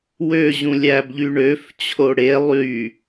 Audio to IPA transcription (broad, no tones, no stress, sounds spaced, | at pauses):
w ø ʑ ũ lʲ æ b ʎ y ɳ ø f t͡ɕʰ o ɽ e lˠ y